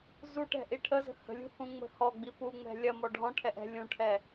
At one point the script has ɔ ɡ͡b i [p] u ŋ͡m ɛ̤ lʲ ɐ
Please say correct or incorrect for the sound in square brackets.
correct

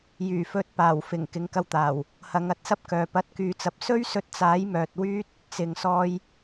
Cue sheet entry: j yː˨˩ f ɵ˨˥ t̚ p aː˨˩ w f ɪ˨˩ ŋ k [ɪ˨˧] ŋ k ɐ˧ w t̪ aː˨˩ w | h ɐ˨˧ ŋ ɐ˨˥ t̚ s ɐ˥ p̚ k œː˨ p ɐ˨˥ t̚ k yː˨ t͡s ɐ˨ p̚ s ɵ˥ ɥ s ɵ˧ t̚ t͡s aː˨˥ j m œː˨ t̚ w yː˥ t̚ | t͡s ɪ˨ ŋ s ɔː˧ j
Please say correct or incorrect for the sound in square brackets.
correct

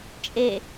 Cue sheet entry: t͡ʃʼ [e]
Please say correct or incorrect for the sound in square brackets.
correct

